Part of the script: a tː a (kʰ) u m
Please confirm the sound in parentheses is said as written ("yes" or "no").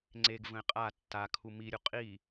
yes